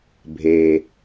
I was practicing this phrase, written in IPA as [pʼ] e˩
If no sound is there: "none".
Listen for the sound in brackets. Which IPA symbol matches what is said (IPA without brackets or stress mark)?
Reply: bʱ